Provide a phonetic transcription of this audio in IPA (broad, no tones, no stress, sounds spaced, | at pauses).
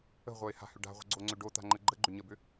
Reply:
ə̤ ʁʷ œ ɪ̯ h a̤ h ʏ ɖ a̤ ʁʷ ə̤ ɡ͡ǀ o ŋ͡ǀ ʏ ɖ o t̪ a̤ ŋ͡ǃ ə ɡ͡ǃ ə ɡ͡ǃ ʏ ɲ ə b ʏ